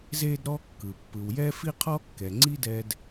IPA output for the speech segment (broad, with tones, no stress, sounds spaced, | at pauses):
z e˥ d ɾ ɔ˥ kː ɯ˩ pː ɯ˩ w j ɛ˥ f i˥ qʰ ɔ˥ kː ɛ˩ ŋ͡ǀ i˥ d ɛ˧ d